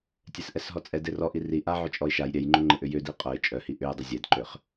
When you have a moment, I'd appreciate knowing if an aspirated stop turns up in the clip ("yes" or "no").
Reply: no